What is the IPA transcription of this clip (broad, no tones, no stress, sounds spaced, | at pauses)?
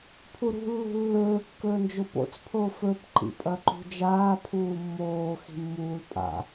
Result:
pʰ u ɾ ṳ lː ṳ lː ɵː kː ɵː n d͡ʒ o p o̰ t͡s pʰ oː f ɵ p ǃ ḭ pʼ ɐ ǃ ṳ d͡ʒ aː pʰ uː mː oː x i̤ mː uː l pʼ a̰